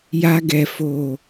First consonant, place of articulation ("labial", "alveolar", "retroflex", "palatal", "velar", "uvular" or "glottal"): palatal